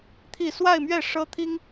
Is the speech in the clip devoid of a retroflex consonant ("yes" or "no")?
no